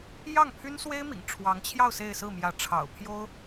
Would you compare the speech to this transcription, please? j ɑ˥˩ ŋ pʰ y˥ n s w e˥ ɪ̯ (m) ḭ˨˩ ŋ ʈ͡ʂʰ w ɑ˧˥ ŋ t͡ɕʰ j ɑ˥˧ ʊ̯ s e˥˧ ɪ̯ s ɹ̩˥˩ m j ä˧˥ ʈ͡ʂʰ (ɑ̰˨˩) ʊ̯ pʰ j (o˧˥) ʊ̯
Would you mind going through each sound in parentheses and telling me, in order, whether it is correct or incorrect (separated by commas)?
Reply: correct, correct, incorrect